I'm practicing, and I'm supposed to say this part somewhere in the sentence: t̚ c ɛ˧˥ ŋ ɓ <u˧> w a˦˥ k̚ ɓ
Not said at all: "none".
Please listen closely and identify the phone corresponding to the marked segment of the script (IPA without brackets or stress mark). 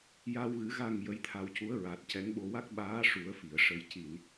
o˧